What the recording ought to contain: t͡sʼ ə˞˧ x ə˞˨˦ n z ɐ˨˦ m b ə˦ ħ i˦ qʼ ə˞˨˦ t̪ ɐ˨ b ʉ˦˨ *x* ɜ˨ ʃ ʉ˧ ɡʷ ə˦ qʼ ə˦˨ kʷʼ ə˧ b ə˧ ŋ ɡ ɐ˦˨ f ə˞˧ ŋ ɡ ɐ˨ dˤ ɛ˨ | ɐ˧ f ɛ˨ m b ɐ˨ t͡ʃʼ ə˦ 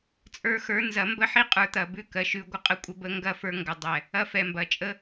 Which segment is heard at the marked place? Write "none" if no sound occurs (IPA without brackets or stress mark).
k